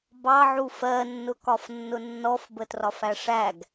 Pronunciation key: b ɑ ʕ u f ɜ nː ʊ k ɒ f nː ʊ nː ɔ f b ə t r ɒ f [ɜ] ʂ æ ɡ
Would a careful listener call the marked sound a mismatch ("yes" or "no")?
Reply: yes